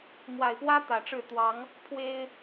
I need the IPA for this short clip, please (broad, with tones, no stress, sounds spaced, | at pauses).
m w a˨˩ ɪ̯ p w ä˦ t̪ ä˨˩ ʈ͡ʂ ɻ̩˥˨ t̪ w ɑ˨˦ ŋ | pʰ w e˦ ɪ̯